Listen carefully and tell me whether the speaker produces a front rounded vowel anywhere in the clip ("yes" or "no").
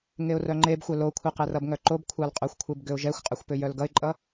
yes